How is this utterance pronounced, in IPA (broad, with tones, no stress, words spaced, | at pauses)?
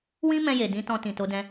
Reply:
wĩ˦mɛ̃˧je˨ dĩ˨˦ tɔ̃˧tĩ˨ to˨˦dɛ̃˧